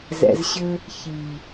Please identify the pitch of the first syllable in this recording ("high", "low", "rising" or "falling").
low